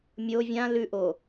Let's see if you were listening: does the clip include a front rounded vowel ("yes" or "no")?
no